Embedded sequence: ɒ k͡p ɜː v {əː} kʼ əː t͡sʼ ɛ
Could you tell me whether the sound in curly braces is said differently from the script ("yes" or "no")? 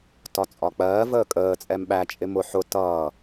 no